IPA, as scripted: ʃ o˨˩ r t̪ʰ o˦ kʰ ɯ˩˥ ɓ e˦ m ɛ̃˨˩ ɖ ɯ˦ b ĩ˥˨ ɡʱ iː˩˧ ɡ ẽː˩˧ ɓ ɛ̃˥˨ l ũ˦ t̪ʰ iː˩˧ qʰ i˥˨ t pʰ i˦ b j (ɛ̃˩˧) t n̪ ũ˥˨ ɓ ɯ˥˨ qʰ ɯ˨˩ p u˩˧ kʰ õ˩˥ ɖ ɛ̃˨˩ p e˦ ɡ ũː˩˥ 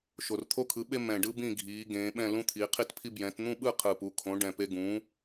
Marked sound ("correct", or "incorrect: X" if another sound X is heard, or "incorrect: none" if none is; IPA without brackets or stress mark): correct